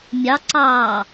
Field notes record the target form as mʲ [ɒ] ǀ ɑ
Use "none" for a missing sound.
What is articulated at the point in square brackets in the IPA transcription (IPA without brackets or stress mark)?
ɑ